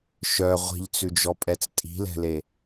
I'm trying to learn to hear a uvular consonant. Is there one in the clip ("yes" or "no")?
yes